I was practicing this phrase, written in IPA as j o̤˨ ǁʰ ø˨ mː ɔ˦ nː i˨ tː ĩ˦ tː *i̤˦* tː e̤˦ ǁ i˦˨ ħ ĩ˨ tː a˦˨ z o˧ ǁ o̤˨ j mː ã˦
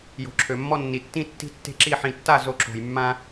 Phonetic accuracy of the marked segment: correct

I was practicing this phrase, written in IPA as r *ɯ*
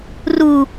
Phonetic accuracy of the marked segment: incorrect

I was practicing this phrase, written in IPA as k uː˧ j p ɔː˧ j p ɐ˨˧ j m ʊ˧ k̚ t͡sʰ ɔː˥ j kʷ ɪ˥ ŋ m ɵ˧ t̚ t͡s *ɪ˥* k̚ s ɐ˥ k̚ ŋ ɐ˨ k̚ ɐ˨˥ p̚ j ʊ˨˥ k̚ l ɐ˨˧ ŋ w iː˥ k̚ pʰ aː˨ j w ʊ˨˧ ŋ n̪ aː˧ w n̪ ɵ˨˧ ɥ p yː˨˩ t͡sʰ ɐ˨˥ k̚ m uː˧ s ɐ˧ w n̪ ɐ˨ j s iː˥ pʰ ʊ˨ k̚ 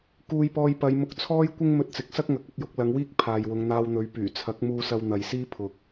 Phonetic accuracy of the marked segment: incorrect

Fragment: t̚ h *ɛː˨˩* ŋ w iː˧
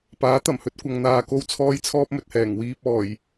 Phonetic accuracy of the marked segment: correct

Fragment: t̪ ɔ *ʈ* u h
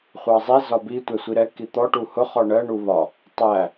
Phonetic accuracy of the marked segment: correct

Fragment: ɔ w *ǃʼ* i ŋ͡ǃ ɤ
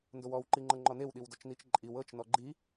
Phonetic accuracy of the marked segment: incorrect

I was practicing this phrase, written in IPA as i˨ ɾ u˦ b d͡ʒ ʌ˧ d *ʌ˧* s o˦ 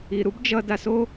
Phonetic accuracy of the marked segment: incorrect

